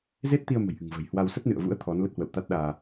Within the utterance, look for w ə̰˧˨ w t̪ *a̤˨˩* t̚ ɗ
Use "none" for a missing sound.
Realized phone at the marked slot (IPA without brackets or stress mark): a˦˥